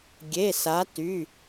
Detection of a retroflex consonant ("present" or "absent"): absent